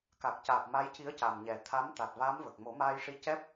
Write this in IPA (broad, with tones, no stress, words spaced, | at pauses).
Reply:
ka˨˩k̚caː˨˩p̚ ma˧˥jci˧˥ə̯ca˨˩m ɲɛ˨˩ t̪ʰa˧˥m t̪a˨˩t̚vaː˧˥mvə˨˩k̚ mo˨˩˦maː˧jʂi˧˥ cɛ˦˥p̚